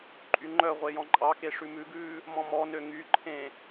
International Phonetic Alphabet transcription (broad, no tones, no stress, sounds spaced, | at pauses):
ǃʼ y ŋ͡ǃ œ ʁʷ e j ɔ̃ ǃʼ ɑ k e ʂ ʉ m ʉ ɡ ʉː | m ɔ̃ m ɔ n ø ŋ y ǃʰ ẽ